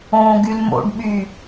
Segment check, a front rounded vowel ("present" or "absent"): present